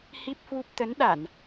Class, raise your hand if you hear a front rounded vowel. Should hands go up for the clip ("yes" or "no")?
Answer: no